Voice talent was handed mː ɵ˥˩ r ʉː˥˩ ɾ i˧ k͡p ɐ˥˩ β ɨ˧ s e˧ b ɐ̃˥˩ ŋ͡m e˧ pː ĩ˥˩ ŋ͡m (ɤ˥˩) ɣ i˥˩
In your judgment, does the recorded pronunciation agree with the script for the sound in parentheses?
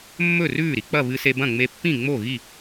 no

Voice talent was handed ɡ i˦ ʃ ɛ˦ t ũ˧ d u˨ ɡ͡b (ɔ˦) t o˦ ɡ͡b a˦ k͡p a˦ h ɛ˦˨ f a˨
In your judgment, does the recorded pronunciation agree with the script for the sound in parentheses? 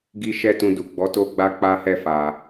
no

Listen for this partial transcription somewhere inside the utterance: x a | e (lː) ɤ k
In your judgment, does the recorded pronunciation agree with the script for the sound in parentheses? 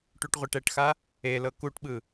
no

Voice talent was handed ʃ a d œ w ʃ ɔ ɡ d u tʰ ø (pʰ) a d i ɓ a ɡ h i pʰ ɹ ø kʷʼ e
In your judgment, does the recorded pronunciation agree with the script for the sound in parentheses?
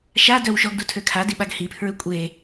no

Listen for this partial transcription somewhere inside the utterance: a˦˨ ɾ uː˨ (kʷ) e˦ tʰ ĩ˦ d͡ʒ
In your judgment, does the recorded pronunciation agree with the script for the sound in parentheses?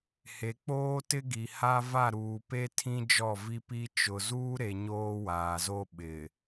no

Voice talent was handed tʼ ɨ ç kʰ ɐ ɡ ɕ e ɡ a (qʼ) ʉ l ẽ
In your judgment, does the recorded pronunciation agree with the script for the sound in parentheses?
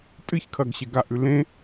no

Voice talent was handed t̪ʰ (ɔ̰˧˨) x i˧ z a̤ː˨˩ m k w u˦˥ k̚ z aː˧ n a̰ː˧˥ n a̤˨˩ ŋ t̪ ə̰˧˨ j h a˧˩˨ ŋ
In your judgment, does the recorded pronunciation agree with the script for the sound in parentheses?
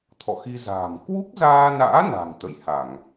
yes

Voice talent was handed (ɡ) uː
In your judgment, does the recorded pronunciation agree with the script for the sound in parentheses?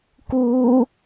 no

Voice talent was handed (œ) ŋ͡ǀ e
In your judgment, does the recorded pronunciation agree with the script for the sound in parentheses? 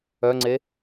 yes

